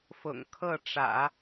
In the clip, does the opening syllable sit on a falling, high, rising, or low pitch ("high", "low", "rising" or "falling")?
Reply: low